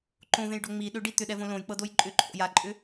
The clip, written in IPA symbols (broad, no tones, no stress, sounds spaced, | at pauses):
ǃ õ v ẽ j ɖ o ŋ͡m i ɗ ʏ ɖ i t̪ ʏ ɗ ɛ v õ l õ j k͡p ɤ d o j ǃʼ ʏ ǃʰ o̰ j a ǃʼ ʏ